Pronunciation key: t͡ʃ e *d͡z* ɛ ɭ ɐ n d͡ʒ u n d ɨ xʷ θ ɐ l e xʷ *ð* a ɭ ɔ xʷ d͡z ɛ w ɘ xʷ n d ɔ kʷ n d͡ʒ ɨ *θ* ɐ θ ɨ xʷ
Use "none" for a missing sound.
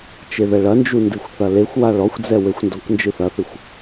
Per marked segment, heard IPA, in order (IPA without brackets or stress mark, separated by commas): ð, w, θ